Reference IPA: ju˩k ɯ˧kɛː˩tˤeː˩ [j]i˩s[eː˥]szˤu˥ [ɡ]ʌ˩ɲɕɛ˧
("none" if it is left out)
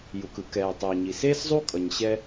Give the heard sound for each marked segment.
ɲ, eː˥, kʼ

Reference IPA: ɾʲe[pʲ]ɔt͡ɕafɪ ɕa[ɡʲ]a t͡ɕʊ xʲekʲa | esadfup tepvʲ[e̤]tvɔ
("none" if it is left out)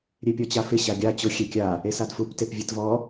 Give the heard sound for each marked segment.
pʲ, ɡʲ, e

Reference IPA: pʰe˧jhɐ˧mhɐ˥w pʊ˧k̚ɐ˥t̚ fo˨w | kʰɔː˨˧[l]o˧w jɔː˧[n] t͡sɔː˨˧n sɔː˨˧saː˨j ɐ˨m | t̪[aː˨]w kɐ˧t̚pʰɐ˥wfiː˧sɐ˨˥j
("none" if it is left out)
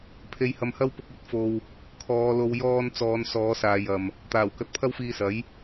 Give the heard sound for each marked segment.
l, n, aː˨˩

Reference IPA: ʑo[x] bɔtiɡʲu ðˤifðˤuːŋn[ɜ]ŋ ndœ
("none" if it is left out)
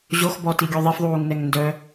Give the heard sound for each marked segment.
x, ɛ

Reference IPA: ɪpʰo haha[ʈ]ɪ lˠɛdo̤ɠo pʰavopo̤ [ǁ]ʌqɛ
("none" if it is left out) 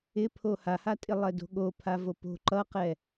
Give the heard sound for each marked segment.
tʼ, ǃ

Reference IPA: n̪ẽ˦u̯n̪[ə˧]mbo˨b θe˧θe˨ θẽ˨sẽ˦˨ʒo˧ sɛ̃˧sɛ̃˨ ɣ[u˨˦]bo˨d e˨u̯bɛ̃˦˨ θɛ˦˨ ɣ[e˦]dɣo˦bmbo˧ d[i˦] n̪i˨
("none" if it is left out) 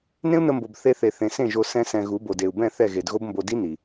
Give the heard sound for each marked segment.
ə˧, u˨˦, e˨, i˦

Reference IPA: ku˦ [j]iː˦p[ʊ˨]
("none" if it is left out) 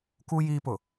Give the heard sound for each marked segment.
j, ʊ˨

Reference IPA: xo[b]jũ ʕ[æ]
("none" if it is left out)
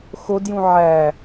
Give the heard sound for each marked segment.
d, æ

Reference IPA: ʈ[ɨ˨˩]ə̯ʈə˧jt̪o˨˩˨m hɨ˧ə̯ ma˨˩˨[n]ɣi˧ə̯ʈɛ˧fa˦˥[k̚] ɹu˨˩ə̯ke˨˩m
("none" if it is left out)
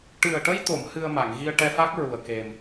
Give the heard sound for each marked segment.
ɨ˨˩, ŋ, k̚

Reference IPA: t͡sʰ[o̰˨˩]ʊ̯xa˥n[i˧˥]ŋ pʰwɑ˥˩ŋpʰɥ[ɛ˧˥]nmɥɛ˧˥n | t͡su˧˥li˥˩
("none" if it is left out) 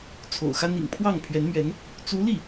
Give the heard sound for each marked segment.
o̰˨˩, ḭ˨˩, ɛ˧˥

